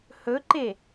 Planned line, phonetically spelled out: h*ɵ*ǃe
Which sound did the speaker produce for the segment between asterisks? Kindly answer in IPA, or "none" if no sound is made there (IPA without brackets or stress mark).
ɵ